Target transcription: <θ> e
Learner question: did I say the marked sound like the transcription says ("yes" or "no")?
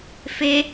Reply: no